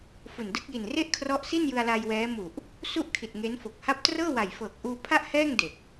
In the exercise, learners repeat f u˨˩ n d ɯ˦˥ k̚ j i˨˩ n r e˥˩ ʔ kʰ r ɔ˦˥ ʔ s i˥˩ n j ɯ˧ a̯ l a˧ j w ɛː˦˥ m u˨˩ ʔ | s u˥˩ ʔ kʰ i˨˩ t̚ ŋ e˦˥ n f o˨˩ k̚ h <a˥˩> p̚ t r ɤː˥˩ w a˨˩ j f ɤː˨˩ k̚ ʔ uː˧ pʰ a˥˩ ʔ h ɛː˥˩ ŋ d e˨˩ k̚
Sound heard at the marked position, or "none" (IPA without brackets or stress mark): a˥˩